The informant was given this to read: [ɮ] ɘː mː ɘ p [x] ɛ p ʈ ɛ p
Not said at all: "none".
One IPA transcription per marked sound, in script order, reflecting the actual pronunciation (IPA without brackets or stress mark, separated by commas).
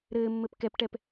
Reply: ɾ, k